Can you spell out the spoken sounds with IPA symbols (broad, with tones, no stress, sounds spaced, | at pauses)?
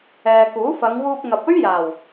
ɛː˨ k uː˨˥ f ɐ˨˧ ŋ w uː˧ p̚ ŋ ɐ˨ p̚ ɵ˥ ɥ j aː˨˩ w